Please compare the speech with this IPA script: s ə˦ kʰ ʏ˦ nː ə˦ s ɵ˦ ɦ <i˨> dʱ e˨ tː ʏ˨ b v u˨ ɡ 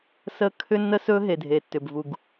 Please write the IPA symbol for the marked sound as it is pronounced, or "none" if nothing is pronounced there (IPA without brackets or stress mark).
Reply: e˨